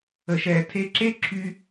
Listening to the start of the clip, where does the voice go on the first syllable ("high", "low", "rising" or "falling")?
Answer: low